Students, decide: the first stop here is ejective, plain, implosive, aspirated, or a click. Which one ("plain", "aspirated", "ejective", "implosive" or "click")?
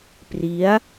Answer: plain